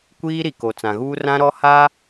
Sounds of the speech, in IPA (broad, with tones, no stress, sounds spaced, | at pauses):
kʷ iː˦ ɾ i˨ k o˨ t͡s ã˨ ɣ uː˦ r ã˦ ɾ ɔ˦ h a˦